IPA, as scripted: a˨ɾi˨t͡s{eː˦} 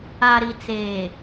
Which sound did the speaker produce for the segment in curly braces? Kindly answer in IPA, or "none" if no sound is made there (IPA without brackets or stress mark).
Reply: eː˨